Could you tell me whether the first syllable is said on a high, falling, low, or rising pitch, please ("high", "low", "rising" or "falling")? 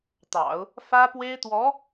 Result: low